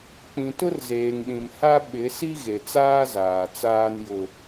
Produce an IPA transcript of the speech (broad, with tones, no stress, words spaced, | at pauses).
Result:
k͡pĩ˨tʊ˦rzeː˨ŋɗĩ˨m ha˦ ɓɪ˨˦ si˦ɣe˨t͡saː˦zaː˨ t͡saː˦njʊ˦